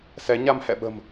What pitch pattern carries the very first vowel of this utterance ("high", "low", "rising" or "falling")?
rising